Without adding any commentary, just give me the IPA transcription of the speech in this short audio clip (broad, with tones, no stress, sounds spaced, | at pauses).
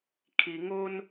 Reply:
kʰ i˩ ŋ o˧ n